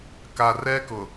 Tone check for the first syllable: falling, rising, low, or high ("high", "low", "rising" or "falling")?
low